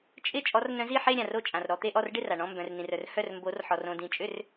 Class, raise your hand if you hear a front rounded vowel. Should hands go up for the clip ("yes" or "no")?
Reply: yes